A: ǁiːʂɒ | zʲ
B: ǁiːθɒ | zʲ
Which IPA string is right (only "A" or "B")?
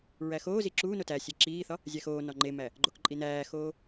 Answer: B